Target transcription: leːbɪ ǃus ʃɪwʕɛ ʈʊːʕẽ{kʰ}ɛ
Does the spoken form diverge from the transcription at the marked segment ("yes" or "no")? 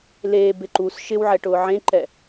yes